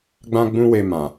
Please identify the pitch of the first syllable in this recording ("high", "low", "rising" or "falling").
high